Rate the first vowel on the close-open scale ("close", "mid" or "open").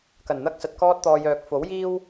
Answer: open